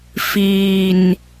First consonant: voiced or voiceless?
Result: voiceless